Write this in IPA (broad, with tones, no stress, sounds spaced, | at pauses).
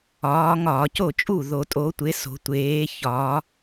ɒː˨˦ ŋ ɒː˧˩˧ c o˥˩ t͡ʃʼ u˥˩ ð o˧˩˧ tʼ o˨˦ tʷ e˨˦ s o̤˨˦ tʷ eː˨˦ ç ɒː˨˦